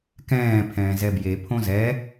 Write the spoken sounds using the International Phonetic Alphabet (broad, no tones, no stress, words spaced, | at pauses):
kɛ̃ː pʰɛ̃ːzɛbje pʰõzɛ